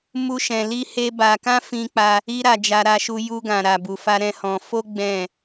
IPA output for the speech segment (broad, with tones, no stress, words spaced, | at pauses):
mu˦ʃɛ̃˧ li˦he˦ba˧ kã˦fĩ˧k͡pa˧ | i˦ɾa˧d͡ʒa˧ ɾa˧ʃu˧ ju˧ɡã˨ ɾa˨bu˨fa˧ ɾɛ̃˦hɔ̃˧ fo˦ ɡ͡bɛ̃˦˨